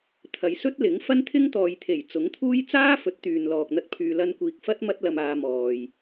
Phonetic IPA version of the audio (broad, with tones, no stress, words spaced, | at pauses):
t̪ʰɐ˨˧j sɵ˥t̚lɪ˨˥ŋ fɐ˥nt̪ʰɪ˥ŋt̪ɔː˨jt̪ʰe˨˩j t͡sʊ˨˥ŋt̪ʰuː˥j t͡saː˥fɵ˨˥t̚ t̪yː˨nlɔː˨k̚n̪ɐ˥t̚pʰyː˧ lɐ˧nkʷiː˨k̚fɐ˥t̚ mɐ˥t̚lɐ˧maː˧mɔː˨j